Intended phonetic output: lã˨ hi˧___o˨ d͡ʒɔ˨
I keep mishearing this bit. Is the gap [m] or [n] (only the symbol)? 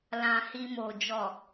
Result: m